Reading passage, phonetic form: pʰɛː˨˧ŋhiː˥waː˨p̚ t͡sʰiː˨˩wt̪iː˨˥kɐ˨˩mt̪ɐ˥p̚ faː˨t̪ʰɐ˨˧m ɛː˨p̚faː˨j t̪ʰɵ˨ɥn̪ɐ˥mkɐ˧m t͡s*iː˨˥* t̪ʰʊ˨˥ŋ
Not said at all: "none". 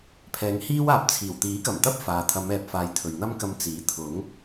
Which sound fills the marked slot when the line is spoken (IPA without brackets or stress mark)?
iː˨˥